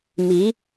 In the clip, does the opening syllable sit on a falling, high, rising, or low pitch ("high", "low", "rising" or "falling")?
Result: rising